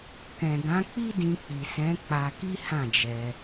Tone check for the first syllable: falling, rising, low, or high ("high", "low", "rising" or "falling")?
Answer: low